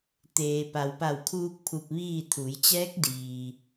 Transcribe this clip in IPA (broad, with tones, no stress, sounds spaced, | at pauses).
t̪ eː˩ p a˩ w p a˧˩ w kʰ uː˧ k̚ pʰ u˧ p̚ ʋ iː˥˨ t̪ʰ u˩˧ j t͡ɕ ɛː˧˥ k̚ d iː˩